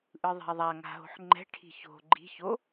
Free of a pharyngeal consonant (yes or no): no